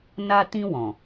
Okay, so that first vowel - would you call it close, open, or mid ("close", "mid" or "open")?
open